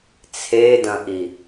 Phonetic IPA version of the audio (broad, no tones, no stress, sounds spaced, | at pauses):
t͡sʰ e d ɐ̃ ʔ i